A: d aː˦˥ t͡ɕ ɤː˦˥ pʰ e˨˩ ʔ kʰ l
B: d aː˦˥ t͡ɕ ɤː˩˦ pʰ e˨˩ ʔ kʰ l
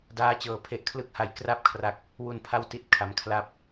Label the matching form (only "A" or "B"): B